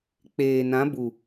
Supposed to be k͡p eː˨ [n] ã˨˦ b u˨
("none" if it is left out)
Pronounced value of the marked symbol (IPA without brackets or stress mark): n